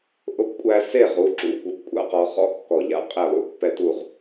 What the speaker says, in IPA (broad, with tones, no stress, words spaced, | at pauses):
ʔʊ˥˨pkʷʼæ˦ se˥˨ ʁu˨˦ǁṵ˩˧˩ kʷœ˦p kʷʼa̰˦qɔ˨˦ χɔ̰˦kːɔ˧˩ʎa̰˥˨ qʼe˥˨lˠṵ˥˨ pːɛ˦tu˥˨ʁ